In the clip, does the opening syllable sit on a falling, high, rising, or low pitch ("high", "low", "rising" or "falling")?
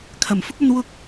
low